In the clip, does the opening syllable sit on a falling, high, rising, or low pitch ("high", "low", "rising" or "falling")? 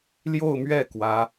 falling